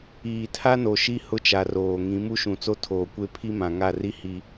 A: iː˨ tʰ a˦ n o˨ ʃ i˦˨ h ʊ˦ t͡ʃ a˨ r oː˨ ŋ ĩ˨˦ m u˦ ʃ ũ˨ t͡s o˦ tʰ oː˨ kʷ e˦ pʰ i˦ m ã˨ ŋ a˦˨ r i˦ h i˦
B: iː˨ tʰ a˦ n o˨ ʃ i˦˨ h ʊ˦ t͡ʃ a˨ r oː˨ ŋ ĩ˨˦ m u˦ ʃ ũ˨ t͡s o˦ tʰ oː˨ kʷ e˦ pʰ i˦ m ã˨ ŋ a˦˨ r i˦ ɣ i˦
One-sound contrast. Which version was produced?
A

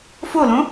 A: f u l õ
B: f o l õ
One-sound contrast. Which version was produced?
B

